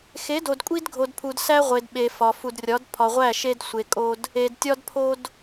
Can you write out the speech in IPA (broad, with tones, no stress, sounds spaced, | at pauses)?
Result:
x e˨˦ d o˨ d kʷʼ i˦ d ɡʱ o˨ d pʰ u˨ d s æ˦ ʁʷ e˨ d ɓ e˨ f ɒ˨ f u˨ d rʲ ɒ˨˦ d pʰ ɒ˨ ʁʷ æ˦˨ ʃ e˦ d sʷ e˨ kʼ o˦ d | e˨ d tʲ ɒ˦ d pʰ o˦ d